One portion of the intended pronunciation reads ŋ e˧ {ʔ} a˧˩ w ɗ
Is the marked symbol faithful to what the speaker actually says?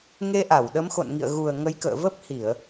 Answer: yes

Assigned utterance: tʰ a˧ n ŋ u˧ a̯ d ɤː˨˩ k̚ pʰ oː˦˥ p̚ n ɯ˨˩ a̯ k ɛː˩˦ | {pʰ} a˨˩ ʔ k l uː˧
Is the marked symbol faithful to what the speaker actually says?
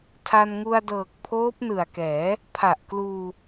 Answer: yes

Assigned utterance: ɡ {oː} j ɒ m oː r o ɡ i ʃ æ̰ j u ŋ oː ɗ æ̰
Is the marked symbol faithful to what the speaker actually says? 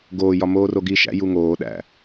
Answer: yes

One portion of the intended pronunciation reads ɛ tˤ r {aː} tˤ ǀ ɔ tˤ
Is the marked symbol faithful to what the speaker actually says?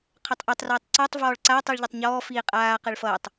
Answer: no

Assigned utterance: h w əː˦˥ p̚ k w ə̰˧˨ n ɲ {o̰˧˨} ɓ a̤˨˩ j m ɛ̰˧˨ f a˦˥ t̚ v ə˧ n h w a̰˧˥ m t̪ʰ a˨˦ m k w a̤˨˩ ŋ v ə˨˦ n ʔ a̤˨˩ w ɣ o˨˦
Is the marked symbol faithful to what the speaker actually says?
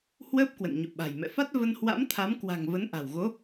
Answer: yes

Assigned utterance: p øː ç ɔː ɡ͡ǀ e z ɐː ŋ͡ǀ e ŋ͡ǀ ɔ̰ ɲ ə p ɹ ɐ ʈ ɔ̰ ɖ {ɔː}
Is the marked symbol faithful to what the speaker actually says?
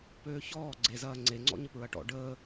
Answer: no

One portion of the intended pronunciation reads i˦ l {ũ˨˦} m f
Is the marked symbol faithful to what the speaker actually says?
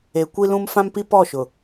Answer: no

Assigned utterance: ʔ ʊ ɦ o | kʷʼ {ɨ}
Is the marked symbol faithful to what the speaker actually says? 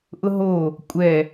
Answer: no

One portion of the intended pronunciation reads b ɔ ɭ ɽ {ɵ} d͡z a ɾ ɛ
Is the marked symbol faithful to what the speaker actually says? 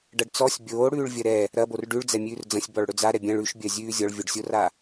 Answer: yes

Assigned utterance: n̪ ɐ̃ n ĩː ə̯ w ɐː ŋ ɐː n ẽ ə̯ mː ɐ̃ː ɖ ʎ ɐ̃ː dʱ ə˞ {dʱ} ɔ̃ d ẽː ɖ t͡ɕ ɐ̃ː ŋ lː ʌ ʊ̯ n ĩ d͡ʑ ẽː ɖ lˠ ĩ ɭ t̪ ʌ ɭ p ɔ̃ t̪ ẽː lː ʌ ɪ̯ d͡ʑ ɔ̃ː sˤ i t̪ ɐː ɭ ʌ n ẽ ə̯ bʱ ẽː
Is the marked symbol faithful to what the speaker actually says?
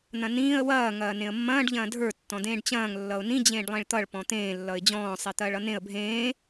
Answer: no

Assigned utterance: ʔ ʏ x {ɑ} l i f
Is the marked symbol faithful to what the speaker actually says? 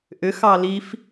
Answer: yes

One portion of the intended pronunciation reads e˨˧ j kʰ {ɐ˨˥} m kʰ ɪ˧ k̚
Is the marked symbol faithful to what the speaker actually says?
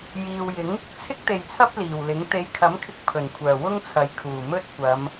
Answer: yes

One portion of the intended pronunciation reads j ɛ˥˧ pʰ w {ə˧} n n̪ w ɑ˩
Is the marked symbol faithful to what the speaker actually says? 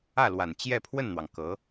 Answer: no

